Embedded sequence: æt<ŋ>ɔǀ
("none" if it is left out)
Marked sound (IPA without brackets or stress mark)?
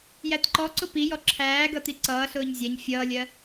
ǃ